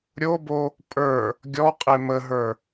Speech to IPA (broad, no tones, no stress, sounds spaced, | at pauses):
ɾʲ o b o | pʼ ə˞ | ɡʲ ɔ qʼ e m ə ɦ ə˞